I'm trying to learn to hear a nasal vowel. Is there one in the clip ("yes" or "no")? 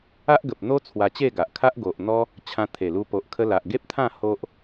yes